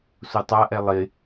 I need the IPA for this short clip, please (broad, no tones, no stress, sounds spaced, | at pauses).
s u tˤ a ʔ ɛ lˠ ɪ